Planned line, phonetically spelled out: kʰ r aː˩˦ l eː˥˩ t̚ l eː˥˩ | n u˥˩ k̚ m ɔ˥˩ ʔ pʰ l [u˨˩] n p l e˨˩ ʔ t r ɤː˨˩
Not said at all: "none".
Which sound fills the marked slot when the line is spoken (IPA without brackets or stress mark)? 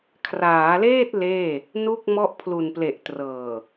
u˨˩